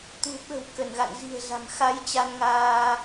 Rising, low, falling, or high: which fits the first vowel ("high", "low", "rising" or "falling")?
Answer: low